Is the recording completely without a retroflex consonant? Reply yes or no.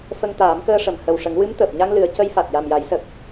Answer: no